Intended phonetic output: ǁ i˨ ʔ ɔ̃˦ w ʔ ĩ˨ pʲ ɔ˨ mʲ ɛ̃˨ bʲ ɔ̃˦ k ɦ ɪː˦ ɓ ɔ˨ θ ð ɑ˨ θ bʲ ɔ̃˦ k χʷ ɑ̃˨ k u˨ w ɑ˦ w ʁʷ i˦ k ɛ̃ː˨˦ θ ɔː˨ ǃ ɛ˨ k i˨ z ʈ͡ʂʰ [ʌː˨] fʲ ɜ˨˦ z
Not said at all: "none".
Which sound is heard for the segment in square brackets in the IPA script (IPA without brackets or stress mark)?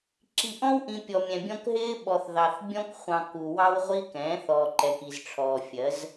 ɔː˨